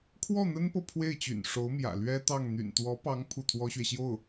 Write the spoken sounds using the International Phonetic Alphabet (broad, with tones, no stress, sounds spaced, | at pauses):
kʰ w ɔ˥˩ n̪ ə˥ n p ɤ˨ pʰ w e˥˩ ɪ̯ t͡ɕ y̰˨˩ n ʂ o˧˥ ʊ̯ m j ä̰˨˩ l ɥ ɛ˥ t̪ ɑ˥˩ ŋ n̪ y̰˨˩ n t̪ w ɔ˧˥ p ɑ˧˥ ŋ pʰ u˥˩ t̪ʰ w ɔ˥ ɕ ɥ ɛ˨ ɕ j o˥˩ ʊ̯